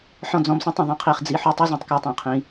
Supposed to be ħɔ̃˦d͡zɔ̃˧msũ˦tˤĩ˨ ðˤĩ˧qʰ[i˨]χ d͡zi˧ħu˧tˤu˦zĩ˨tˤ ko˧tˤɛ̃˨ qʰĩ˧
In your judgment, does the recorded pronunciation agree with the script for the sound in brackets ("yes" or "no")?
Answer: no